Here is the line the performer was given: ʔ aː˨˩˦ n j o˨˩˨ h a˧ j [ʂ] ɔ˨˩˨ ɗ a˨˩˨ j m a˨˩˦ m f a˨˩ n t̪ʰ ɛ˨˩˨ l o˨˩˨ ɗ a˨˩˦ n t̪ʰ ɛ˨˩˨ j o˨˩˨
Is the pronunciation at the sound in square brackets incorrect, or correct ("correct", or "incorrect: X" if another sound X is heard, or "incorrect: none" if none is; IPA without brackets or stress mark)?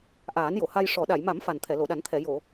correct